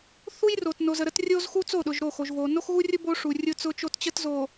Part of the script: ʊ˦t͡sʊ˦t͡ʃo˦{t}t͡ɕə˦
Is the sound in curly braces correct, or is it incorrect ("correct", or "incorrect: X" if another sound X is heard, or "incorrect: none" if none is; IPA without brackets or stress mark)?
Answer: correct